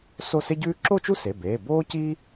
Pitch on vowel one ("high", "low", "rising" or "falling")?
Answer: falling